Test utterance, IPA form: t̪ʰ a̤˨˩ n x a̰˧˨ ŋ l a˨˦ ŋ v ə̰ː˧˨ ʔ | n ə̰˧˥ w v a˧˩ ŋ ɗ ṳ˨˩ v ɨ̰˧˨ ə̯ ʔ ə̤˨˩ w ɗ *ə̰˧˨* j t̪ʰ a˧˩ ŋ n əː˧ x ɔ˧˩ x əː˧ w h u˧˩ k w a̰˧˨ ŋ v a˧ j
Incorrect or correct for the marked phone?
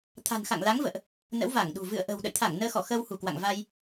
correct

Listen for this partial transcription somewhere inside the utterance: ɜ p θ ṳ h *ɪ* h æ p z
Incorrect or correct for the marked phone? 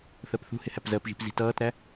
correct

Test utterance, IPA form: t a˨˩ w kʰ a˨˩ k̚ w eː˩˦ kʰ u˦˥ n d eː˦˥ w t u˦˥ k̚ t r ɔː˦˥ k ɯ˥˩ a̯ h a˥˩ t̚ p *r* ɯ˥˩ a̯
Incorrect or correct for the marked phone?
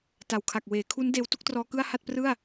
correct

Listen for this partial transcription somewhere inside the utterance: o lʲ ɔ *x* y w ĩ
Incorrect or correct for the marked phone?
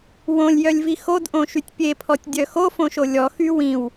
correct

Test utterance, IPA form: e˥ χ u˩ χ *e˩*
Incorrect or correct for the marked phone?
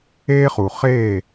incorrect: e˥˩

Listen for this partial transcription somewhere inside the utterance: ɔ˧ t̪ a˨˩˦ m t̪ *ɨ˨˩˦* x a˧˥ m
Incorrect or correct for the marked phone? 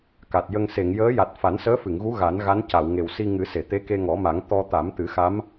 correct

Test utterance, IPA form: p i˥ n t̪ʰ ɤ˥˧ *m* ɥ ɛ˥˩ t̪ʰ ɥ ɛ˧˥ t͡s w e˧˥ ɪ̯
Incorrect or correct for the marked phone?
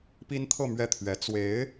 correct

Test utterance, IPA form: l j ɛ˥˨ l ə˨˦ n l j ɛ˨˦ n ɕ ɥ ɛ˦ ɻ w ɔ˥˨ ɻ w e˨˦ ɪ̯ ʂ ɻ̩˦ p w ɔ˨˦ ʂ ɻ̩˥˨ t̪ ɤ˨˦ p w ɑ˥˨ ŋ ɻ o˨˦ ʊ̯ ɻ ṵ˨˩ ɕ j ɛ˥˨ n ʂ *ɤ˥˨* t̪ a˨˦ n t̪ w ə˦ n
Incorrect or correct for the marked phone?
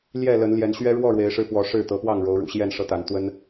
incorrect: ɤ˦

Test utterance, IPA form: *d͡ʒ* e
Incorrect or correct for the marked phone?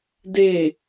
incorrect: d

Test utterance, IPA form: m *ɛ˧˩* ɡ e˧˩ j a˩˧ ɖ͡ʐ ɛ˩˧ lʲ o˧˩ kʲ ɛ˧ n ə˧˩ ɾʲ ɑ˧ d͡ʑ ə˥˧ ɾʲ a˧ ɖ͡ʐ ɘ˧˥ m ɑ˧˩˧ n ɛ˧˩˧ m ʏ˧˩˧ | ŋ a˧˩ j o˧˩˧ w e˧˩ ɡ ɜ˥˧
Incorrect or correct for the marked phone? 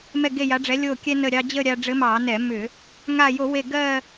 correct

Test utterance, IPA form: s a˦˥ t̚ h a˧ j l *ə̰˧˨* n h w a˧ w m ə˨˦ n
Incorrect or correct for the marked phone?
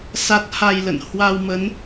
correct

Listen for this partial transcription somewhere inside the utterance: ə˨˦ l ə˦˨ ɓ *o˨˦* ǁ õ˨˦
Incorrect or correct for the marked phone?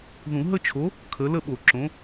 incorrect: o˨˩˦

